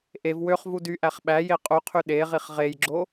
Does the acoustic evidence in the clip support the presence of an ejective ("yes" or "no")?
yes